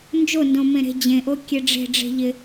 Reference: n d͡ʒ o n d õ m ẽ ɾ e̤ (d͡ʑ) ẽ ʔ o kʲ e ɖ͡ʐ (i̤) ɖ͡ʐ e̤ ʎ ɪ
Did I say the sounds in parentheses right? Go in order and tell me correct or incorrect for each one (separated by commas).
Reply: correct, incorrect